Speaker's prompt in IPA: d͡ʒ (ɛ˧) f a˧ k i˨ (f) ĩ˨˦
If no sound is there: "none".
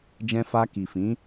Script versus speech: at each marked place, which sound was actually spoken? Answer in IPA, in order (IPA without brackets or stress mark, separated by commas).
ɛ̃˧, f